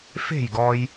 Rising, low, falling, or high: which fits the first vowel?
falling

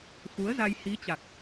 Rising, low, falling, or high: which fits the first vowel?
rising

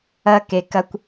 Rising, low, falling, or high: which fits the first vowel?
high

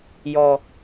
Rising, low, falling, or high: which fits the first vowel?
low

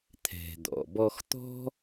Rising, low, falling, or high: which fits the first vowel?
low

